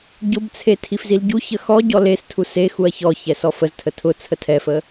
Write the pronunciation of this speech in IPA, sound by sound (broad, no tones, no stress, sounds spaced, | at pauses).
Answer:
ɟ ʊ b t͡sʰ e tʰ i f z i l ɟ u ç ə x ɔ ɟ ɔ l e s tʰ u s e x u ɐ̯ ç ɔ ç ɛ s ɔ f ə z tʰ ə tʰ ʊ t͡sʰ ə tʰ ɛ f ə